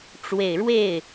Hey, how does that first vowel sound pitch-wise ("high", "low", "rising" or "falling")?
low